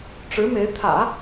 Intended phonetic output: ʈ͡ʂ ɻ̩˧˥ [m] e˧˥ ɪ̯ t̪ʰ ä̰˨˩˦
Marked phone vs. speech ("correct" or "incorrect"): correct